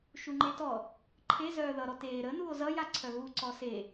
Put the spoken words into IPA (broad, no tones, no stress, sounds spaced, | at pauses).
ʃ u ŋ͡ǃ e t ɔ | ǃʰ e z œː ð ʌ ɾ ɔ t eː ɾ ə n u o̯ z ʌ j a ǀʰ œ ɣ u ǀ ɔ s e